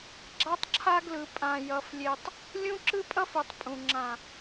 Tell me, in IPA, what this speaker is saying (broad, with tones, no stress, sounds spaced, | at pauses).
ɡ͡ǁ a˦ tˤ ǁʰ a˦ ɡ l ɯ˨ pʼ ã˨ j ʌ˨ f lʲ e˨ tˤ | lʲ ũ˦ ǁ ɯ˦ pʼ ʌ˦ f u˨ tˤ pʼ ũ˨ ŋ͡ǁ ã˨